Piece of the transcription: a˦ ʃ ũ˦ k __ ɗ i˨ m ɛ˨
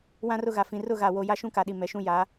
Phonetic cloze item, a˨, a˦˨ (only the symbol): a˨